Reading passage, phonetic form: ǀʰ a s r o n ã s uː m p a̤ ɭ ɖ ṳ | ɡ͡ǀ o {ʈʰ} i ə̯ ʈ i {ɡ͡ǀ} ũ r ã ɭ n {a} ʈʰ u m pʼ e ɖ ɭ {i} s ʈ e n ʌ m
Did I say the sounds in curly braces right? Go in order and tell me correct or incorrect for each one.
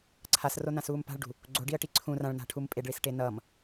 incorrect: ɖ, incorrect: ǀʰ, incorrect: a̤, correct

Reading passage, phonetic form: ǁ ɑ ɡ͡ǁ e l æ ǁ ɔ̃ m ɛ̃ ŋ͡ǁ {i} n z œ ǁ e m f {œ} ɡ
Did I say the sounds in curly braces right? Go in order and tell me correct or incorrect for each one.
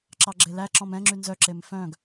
incorrect: y, incorrect: œ̃

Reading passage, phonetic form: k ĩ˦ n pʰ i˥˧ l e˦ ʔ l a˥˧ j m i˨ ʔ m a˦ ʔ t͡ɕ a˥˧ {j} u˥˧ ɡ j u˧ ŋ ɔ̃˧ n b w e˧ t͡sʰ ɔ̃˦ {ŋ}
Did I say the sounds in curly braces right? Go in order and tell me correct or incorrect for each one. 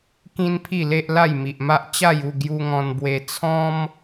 correct, incorrect: m

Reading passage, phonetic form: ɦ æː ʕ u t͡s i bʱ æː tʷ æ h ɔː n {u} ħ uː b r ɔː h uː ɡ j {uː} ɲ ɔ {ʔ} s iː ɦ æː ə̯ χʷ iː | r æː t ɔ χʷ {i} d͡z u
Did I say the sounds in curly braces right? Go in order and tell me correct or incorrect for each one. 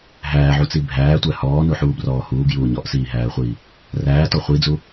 correct, correct, correct, correct

